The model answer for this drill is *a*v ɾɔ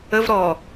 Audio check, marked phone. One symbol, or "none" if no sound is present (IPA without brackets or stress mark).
ə